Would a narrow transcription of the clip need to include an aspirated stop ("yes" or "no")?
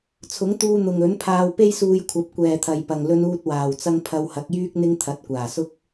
yes